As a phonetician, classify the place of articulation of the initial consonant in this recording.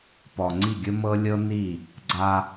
labial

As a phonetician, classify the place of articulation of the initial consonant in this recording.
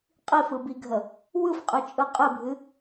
uvular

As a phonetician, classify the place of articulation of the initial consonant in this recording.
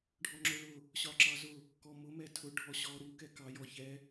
retroflex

